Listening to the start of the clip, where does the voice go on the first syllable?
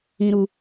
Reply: high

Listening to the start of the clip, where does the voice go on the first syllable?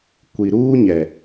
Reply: low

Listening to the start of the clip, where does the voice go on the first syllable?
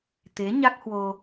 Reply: rising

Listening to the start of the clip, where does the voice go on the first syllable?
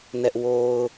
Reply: high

